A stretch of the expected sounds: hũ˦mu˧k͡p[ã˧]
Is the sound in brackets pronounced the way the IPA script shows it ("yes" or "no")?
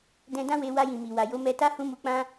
no